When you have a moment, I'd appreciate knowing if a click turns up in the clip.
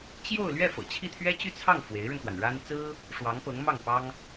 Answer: no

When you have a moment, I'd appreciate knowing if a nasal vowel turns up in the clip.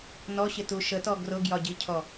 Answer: no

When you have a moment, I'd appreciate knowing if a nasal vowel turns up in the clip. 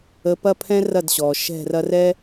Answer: yes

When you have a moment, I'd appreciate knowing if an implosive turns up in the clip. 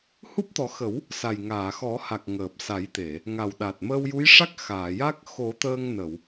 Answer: yes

